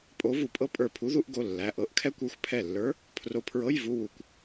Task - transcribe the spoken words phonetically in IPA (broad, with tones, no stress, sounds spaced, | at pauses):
pʼ o˧˥ v u˧˩ pʼ ɤ˥ pʼ ə˞˧˩ pʰ u˧˥ ð u˧˥˧ ʔ ɡ o˩˧˩ lː æ˩˧˩ ʔ ɤ˧˥˧ ʔ kʰ ɛ˥ kʷ ə˞˧˥ xʷ pʰ ɛ˧˩ lː ə˞˧˥ | pʰ r o˧˥ pʰ ɹ ɤ˧˥˧ j v u˧˥˧ w u˧˩ kʷ